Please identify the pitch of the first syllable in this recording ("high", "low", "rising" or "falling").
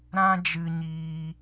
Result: high